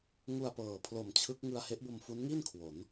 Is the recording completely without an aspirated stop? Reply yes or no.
no